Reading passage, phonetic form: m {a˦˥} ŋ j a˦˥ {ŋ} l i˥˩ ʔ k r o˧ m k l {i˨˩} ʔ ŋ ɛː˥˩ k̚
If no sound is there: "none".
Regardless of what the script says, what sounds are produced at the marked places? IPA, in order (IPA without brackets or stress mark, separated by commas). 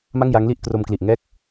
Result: a˥˩, ŋ, i˨˩